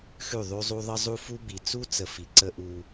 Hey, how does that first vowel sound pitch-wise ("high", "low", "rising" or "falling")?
falling